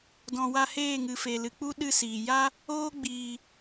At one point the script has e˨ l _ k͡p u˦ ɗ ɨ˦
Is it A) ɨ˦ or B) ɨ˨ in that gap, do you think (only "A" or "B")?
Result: B